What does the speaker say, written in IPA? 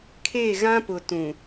kʰ e˦˨ ɣ ã˦ p ʊ˨ t ũ˨

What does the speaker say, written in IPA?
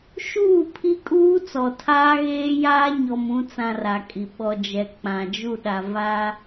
ʃ uː˦˨ pʰ i˦ kʼ uː˦ t͡s ɔ˨ tʰ aː˦ ɣ eː˦ j aː˦ ɲ ɔ˨ m ũ˨˦ t͡s ã˦ r a˨ kʼ i˨ ɓ ɔ˨ d͡ʒ ɛ˨ k͡p ã˨ d͡ʒ u˦˨ ɗ a˨ v a˦

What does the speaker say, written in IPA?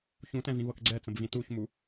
ç ũ t ɛ̃ v ĩ v ɤ k ɡ͡ǀ ɛ t͡s ə̃ b v ĩ t u ç m u

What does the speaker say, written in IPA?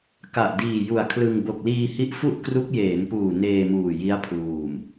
k a˨˩ ʔ d iː˨˩ j u˨˩ a̯ kʰ l ɯ˧ ŋ b o˨˩ k̚ l iː˧ h i˦˥ ʔ f u˥˩ ʔ k r u˦˥ k̚ j eː˩˦ n p uː˨˩ n eː˧ m uː˨˩ j i˦˥ a̯ pʰ l uː˨˩ m

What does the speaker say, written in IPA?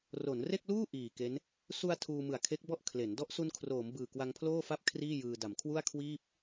r o˩˦ n r e˥˩ k̚ l uː˥˩ ʔ iː˨˩ k e˦˥ n | s u˧ a̯ tʰ uː˧ m ɯ˨˩ a̯ kʰ e˦˥ k̚ b ɔ˥˩ ʔ kʰ l e˩˦ n d ɔ˦˥ ʔ s u˧ n kʰ r oː˩˦ m b ɯː˨˩ k w a˧ ŋ pʰ l oː˥˩ f a˥˩ p̚ kʰ r iː˥˩ j ɯː˧ d a˨˩ m kʰ w u˥˩ a̯ kʰ w iː˥˩ p̚

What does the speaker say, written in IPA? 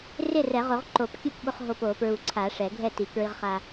r ɪ˥˩ r ɛ˨˩˦ ʁ o˨˩˦ ʁ ǃ o˨˩˦ p kʲ ʊ˥˩ p ɓ ʊ˧ χ ɦ o˧ p o˨˩˦ p ɹ u˨˩˦ ǀʰ a˨˩˦ ʂ ɛ˨˩˦ ɡʱ ɛ˥˩ t i˨˩˦ k ɹ i˧ ʁ χ a˧

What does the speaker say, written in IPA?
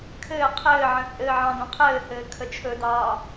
kʰ ɘː qʰ ɘː ʕ ə̃ t͡sʼ ɘː ʕ ɑ̃ d õ qʰ ɘː h ɘː kʰ ə t͡ʃʰ ɵ d ɑː

